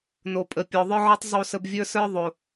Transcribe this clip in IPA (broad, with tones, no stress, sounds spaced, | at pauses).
n o˨ pʼ ə˨ pʲ ɔ˨ ðˤ ə˞˦ ʕ ə˞˦ tˤ zˤ o˦˨ s ə˦ b vʲ ə˞˦ s ə˞˦ ðˤ o˨